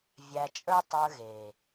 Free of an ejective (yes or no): no